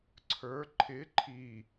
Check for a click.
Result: present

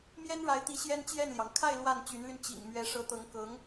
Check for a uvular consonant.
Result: absent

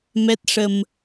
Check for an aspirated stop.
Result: absent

